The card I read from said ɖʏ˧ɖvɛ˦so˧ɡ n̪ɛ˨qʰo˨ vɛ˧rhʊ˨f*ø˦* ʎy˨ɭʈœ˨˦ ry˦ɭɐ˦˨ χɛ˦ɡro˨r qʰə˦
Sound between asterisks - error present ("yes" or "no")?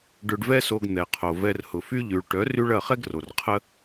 yes